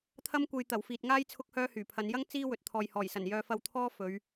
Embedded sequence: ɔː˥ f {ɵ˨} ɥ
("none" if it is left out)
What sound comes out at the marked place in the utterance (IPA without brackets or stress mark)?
ɵ˨˧